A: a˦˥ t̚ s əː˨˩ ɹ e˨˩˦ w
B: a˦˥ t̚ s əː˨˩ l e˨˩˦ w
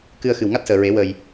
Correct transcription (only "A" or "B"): A